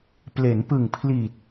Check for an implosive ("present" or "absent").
absent